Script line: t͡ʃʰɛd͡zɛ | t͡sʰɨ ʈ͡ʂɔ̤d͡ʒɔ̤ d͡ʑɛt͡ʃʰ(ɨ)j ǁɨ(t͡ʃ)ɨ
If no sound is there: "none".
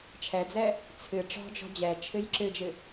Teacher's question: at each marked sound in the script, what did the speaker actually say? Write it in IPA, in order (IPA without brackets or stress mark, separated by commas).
ɨ, d͡ʒ